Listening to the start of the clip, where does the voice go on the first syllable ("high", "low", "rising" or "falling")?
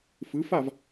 rising